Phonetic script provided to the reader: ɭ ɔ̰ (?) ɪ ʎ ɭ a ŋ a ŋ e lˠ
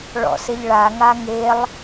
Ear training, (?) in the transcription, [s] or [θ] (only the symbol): s